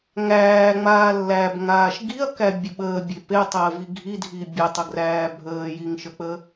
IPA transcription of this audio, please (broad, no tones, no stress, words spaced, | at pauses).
ŋæːŋ͡maː lːæbŋaːʃ ɡiɐ̯kæbʲə ɓəːbʲe petˤəːvi ɡʱidʱi bʲɛtˤəɡræː bʱəːjiŋʃək͡pə